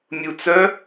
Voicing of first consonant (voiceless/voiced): voiced